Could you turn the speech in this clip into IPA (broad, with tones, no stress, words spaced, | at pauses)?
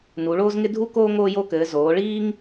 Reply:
nu˩˧ɭoː˦zŋɪ˦ dʱu˦koː˦ ŋoː˦jo˦kɘː˩˧ zoː˩˧ɭiː˦ŋ